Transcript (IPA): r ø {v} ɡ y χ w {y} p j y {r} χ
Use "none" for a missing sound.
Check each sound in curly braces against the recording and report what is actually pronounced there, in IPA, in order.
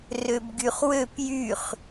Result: b, ø, none

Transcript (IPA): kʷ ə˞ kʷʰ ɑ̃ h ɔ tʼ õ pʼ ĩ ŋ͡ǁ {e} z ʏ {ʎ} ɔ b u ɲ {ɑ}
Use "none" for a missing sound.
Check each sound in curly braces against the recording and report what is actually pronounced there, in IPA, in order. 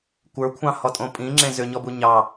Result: ẽ, ɲ, ɑ

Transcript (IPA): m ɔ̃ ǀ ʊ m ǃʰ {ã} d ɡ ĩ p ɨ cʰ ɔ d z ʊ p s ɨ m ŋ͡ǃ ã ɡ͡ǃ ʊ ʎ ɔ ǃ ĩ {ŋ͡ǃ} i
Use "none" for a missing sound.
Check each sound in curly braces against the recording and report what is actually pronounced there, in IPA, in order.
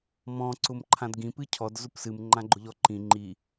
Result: ã, ŋ͡ǃ

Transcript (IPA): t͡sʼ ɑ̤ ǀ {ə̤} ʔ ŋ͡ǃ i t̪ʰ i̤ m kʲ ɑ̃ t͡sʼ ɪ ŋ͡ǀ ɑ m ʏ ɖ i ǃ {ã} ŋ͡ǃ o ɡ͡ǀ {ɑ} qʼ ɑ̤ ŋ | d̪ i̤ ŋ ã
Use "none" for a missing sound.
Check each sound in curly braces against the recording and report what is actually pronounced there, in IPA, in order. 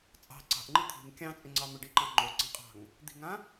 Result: ɑ̤, ɑ̃, ɑ̃

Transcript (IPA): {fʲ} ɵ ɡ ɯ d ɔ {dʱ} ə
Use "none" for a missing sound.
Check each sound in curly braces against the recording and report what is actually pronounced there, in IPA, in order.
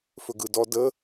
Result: f, d

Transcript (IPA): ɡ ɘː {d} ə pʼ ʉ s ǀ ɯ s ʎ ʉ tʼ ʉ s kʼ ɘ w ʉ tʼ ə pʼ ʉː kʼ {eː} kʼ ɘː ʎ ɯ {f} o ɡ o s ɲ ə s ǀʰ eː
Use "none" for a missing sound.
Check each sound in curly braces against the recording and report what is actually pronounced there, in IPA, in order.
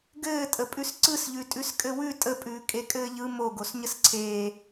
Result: tʼ, e, m

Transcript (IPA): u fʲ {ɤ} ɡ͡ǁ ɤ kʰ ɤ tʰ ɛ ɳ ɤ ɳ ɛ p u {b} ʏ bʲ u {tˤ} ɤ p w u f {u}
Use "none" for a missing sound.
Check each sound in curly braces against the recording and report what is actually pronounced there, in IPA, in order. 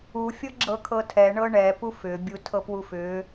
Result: ɤ, f, tʰ, ʏ

